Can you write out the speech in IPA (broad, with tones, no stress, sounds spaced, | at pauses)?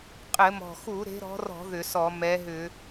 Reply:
qʼ ɘ˧˩˧ m ɔ̤˨˩ x u˧˩˧ ɾ e̤˨˦ ɾ ɔ̤˨˦ r ɔ̤˧˩˧ ð ʏ˧˩˧ s ɔ˧˩˧ m ɛ˨˦ ɦ ʏ˧˩˧